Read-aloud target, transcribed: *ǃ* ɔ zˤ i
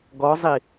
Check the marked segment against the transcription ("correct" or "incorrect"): incorrect